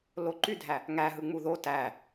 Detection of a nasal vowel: absent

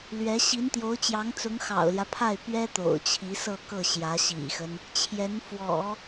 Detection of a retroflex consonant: absent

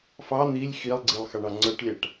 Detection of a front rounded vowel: absent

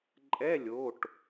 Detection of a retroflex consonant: present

